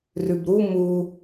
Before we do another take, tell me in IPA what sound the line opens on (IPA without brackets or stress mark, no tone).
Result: r